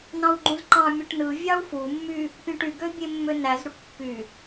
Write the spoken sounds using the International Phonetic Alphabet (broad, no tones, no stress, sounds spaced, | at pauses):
n ɑ̃ w ɡ͡ǃ ũ z ǃ ɑ̃ mʲ ɯ ʈ n ɯ vʲ ɑ u̯ f u mː y | pʲ ũ ʈ y ɡ ø bʲ e mː ø n æ z ɾ u ʈ pː y